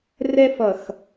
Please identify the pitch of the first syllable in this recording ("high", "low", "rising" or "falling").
high